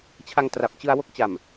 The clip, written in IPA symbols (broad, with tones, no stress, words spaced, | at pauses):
t͡ɕʰa˧ŋ tra˨˩p̚ t͡ɕɯ˧a̯wo˥˩k̚ t͡ɕa˨˩m